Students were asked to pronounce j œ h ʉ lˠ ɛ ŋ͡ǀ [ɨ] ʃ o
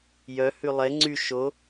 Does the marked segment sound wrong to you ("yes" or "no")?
yes